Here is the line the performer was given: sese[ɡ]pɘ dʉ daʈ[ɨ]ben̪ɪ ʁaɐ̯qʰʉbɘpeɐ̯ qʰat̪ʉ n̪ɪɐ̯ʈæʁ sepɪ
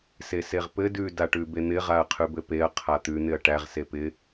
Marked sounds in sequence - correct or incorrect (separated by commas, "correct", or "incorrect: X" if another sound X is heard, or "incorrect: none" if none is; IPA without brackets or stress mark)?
incorrect: ʁ, incorrect: ʉ